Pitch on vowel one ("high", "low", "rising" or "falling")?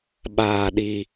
low